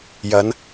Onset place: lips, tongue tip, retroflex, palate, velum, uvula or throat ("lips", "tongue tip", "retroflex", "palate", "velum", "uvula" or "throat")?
palate